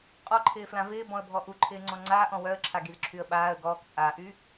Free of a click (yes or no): no